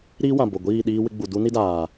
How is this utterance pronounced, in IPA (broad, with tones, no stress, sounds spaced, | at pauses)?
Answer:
ɾ iː˦ w ã˨ b o˨ ɡʷ iː˦˨ ɗ iː˦ w ɪ˦ ɡ͡b u˨ d u˦ n i˦ d aː˨